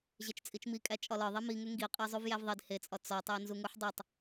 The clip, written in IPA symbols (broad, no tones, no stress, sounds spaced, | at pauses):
ʑ e t͡ʃ t͡sʼ i t͡ʃ m i kʼ æ t͡ʃʼ ɒ l ɒ ðˤ i m i ŋ e ŋ ɡ i qʼ e zˤ u v j æ v ðˤ i d h e t͡sʼ ɒ t͡s ɒ tˤ æ n z u ŋ u ħ dˤ o tˤ